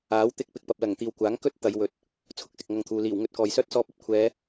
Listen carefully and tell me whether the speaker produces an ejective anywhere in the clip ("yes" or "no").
no